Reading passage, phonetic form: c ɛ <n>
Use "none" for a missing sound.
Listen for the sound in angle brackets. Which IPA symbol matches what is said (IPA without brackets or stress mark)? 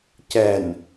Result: n